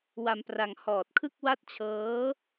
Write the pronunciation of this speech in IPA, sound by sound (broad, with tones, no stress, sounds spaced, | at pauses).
w a˧ m p r a˧ ŋ h ɔː˨˩ t̚ kʰ ɯ˥˩ k̚ w a˥˩ t̚ t͡ɕʰ ɤː˦˥